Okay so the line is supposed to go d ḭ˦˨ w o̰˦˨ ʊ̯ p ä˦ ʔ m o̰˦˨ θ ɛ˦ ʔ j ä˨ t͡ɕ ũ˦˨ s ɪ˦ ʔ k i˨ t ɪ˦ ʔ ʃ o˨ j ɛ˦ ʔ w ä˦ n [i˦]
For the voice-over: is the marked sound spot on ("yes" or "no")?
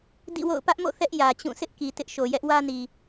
no